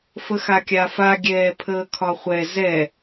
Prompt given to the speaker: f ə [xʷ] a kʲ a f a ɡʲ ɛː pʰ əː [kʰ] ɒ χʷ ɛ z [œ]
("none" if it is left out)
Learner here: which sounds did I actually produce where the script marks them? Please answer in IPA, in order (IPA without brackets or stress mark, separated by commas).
x, kʰ, ɛ